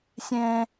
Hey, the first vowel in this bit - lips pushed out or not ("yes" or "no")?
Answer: no